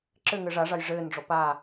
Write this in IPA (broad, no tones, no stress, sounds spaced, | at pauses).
ǁ ɘ ŋ ɘ ʐ a ʐ a j ʐ ɘː n ɖ͡ʐ ɔ p a